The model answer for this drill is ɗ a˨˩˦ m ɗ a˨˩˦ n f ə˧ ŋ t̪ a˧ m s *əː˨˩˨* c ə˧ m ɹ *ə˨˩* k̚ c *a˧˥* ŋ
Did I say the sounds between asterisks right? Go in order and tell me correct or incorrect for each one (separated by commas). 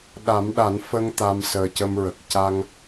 incorrect, correct, incorrect